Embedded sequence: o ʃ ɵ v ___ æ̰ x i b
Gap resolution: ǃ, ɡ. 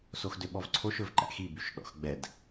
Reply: ǃ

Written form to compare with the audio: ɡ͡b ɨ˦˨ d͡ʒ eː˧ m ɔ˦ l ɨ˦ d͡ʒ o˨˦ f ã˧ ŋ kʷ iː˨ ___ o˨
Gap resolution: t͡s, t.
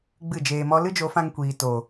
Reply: t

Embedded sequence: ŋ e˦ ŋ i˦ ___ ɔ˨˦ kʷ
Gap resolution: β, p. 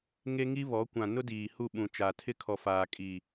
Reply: β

